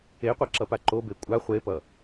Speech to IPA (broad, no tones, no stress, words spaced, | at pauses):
eqʷaǁʌpa ǃobe kʷʼa χʷepʌ